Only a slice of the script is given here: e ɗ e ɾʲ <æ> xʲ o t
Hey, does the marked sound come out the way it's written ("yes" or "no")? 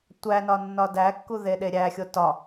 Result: yes